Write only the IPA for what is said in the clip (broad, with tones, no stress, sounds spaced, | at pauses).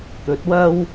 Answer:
t̪ ɵ˨˥ t̚ w ɐ˥ w